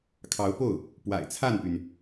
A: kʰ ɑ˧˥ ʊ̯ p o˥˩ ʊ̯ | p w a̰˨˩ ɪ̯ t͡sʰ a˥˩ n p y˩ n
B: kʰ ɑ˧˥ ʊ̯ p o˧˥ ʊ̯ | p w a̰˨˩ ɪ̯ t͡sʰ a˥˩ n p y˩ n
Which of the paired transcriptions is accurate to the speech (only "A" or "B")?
A